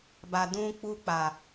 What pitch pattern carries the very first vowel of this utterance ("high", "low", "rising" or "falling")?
low